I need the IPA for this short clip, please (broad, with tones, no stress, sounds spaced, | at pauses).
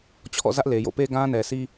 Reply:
t͡ɕʰ ɔ̰˦˨ z ä˦ ʔ l e˨ j o̰˦˨ p e˦ ɡ ã˦ n ɛ˨ sʰ i˦